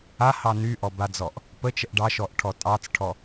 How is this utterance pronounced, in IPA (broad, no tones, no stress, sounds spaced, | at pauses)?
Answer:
a h ɑ n y ʔ ɔ b a d͡z ɔ ʔ | p ə t͡ʃ ə ʔ ɖ ɑ ʃ ɔ ʔ ʈʰ ɔ tʼ ɑ t͡s ʈʰ ɔ